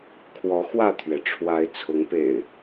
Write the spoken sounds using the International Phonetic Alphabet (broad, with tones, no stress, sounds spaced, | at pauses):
kʰ w ɔ˨˦ x w ä˥˨ t̪ʰ ɥ ɛ˩ ʈ͡ʂʰ w a˨˦ ɪ̯ t͡sʰ ʊ˨˦ ŋ p ḛ˨˩ ɪ̯